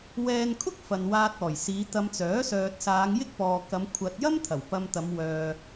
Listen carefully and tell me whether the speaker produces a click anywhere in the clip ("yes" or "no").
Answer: no